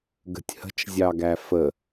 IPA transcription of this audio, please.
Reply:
ɡ ə̤ tʲ h ə̤ t͡ʃ zʲ ɑ ɡ æ f ə

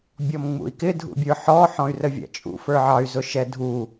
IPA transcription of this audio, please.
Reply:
bʲ ɔ m ŋ͡m ṵ i̯ k ɪ dʱ ṵ bʲ ə˞ ħ ɔ ħ ɔ̃ y̯ r ə vʲ æ̰ t͡ʃʼ ṵ f ə˞ ʕ ɑ y̯ z ʊ ʃ ɛ dʱ u

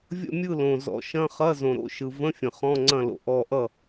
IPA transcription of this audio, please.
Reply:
vʲ ə̰˥˩ mʲ ɯ˥˩ l õ˩ z ɔ̰˩ ʃ ɐ̃˧˥˧ χ ɐ˧˥˧ z õ˩ ɾ o̰˧˥˧ ʃ ɯ˩ v ə̃˧˥˧ fʲ ə̃˩ χ ɔ̃˧˥˧ ŋ͡ǀ ɐ̃˥˩ l o̰˩ ʔ ɔ˥˩ ʔ ʌ˥˩

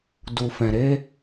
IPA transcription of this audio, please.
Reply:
d u˨ f ɛ̃˨ ɾ e˧

